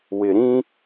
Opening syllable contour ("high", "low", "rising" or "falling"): low